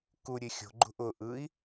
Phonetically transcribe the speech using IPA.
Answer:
k u ɾʲ e xʲ o̤ ɡ͡ǃ ṳ ʔ ʊ ʔ ɯ i̯

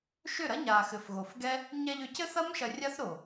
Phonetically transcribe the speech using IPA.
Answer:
ʃ ʏ˦˨ ɾ ɐ˦ ɲ a˨ x ɘ˨ f ɣ o˨ f ɡ ɛ˦ | ɲ ɛ˧ ʎ ʏ˨˦ c ɘ˦ θ ɐ˦ m ʃ ɐ˧ rʲ a˦ θ ɾ o˨

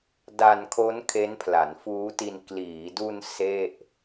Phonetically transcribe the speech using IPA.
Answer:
d a˧ n kʰ o˦˥ n kʰ e˦˥ n pʰ l a˩˦ n f uː˦˥ t i˧ n k l iː˩˦ d u˧ n s e˥˩ ʔ

